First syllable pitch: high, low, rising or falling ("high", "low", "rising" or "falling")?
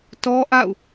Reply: high